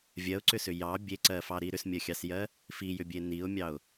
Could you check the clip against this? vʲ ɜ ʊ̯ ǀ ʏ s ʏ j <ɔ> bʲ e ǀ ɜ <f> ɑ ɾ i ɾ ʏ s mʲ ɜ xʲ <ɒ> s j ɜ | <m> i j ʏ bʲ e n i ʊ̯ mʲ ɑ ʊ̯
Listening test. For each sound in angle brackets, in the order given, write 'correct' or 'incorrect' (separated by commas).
incorrect, correct, incorrect, incorrect